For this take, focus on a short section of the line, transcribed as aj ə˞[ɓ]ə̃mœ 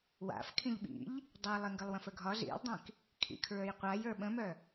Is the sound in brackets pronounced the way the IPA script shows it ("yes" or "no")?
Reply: yes